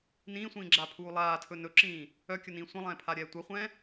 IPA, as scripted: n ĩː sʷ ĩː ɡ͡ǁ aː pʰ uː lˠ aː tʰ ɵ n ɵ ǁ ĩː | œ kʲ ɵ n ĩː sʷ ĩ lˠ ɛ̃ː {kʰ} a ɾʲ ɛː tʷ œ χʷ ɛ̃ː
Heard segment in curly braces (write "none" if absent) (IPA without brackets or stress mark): pʰ